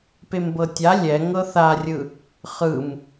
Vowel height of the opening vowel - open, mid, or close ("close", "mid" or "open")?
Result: mid